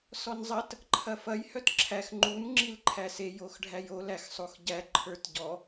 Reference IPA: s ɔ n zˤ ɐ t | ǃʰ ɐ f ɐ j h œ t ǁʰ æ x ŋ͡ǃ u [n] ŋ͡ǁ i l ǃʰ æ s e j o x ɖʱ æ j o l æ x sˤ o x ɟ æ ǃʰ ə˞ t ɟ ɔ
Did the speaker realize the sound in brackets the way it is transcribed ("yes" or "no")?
yes